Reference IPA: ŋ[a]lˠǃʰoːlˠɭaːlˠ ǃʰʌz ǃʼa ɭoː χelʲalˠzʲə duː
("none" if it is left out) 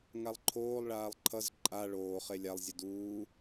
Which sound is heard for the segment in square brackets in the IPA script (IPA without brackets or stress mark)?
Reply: a